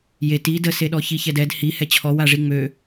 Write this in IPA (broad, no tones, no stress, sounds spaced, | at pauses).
j e t i d ə s e ɗ ɔ ç i ç ɛ d ɛ d h i h ɛ t͡ɕʰ ɔ w a ʐ i ŋ͡m ø